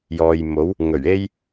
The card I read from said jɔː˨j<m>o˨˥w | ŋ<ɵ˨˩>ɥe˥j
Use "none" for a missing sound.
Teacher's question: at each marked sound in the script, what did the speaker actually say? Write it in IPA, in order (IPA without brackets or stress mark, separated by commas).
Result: m, ɵ˨˩